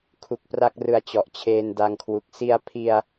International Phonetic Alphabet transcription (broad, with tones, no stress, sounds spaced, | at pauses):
kʰ u˨˩ k̚ p r a˥˩ k̚ r ɯ˨˩ a̯ t͡ɕ ɔ˨˩ ʔ t͡ɕʰ eː˧ n d a˧ ŋ kʰ w u˨˩ k̚ s i˧ a̯ pʰ i˧ a̯